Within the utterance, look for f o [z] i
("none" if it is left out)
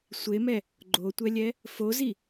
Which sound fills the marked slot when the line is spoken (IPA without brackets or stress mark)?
z